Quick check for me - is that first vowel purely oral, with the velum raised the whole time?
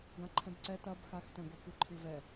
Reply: no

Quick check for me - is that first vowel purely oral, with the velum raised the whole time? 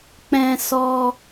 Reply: no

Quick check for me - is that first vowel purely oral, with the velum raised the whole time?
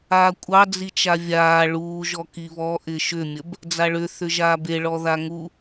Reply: yes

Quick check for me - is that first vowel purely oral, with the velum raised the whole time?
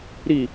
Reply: yes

